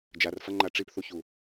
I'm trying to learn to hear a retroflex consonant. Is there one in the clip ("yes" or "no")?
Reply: yes